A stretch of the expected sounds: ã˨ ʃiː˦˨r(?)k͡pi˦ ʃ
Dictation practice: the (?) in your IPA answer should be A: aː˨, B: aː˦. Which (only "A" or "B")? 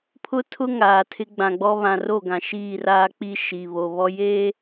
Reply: B